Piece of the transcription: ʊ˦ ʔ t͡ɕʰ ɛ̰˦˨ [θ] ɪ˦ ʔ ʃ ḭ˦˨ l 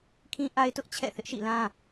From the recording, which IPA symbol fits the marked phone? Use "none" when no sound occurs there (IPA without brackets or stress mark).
θ